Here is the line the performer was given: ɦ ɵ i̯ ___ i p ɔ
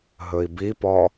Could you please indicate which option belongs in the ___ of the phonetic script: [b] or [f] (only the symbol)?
b